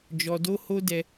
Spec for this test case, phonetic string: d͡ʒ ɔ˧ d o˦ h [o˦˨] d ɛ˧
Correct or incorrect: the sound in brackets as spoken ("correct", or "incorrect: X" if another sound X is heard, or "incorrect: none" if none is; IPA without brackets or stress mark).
incorrect: o˦